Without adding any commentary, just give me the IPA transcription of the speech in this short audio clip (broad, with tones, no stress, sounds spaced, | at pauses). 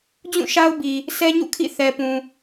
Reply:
d͡ʑ ũ˦˨ ʃ a˦ ʊ̯ b i˨ | s ɛ˦ ɲ ṵ˦˨ kʰ ḭ˦˨ θ ɛ˨ p ũ˨